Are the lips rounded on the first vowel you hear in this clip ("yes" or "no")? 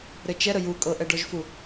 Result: no